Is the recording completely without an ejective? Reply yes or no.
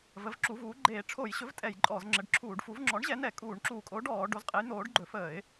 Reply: no